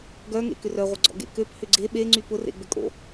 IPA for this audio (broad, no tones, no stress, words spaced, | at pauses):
ɡœŋḛ kʏrœʁʷəɡ͡ǀɔ̰ ɡḛkøp hʏɡ͡ǀe ɓeŋ͡ǀy pʊrḛɡ͡bʏ kʼo̰